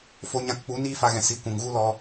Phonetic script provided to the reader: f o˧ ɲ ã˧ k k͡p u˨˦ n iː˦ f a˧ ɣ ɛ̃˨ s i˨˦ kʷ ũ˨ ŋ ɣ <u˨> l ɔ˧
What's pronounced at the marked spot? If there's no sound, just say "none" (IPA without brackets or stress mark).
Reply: u˦